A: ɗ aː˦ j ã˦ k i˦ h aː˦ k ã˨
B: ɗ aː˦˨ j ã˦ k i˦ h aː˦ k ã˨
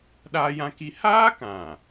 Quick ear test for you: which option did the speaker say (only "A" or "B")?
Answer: A